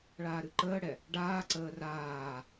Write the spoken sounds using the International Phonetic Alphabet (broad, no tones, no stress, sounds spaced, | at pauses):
ɭ aː ɾ ɨ ǃ əː ɽ ɛ | ɖ aː ǀ əː r aː